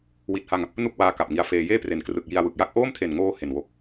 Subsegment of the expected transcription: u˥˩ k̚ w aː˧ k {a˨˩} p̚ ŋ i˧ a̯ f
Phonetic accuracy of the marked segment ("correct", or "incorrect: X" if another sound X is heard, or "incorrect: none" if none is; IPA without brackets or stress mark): correct